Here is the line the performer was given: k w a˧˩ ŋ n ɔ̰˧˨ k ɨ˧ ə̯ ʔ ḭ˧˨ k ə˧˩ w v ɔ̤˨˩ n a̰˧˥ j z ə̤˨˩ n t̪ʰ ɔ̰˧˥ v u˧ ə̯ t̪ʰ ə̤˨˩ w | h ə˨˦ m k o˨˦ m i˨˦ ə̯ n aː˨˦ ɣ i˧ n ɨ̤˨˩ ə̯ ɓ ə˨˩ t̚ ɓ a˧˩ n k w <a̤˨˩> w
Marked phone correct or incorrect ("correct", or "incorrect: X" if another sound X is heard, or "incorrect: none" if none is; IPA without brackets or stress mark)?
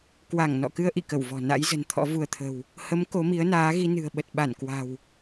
correct